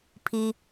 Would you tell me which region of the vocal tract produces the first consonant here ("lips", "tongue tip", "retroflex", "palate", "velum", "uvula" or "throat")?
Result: lips